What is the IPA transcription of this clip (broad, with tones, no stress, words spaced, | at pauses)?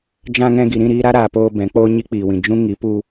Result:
d͡ʒã˧ŋɛ̃˧ ɡi˨ɾĩ˦˨ɾiː˧ ɾa˦ɾaː˨poː˧ bɛ̃˨˦k͡poː˦ ɲi˦k͡piː˨wĩ˨ d͡ʒũ˦ŋi˨˦pu˧